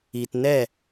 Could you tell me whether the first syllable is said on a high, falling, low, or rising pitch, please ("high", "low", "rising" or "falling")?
low